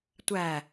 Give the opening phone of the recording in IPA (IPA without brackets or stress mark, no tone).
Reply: tʷ